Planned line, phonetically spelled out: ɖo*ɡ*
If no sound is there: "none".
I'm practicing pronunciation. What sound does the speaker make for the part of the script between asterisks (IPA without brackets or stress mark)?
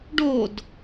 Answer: d